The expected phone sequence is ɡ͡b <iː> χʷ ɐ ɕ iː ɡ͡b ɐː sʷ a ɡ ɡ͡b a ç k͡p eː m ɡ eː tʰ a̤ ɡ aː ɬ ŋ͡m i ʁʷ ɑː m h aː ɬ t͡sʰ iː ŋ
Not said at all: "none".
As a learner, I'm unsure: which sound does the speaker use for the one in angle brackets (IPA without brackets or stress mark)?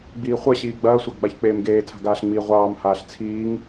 iː